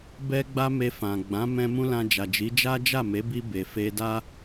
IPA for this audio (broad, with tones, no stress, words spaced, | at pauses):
bɛ˦ ɡ͡ba˦me˧fã˨ ɡ͡bã˨˦mɛ̃˧ mũ˦lã˧d͡ʒa˨d͡ʒi˨˦ d͡ʒa˦d͡ʒa˦˨me˨˦bi˧ be˨fe˧da˦